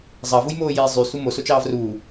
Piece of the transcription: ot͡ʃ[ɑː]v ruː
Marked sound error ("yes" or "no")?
no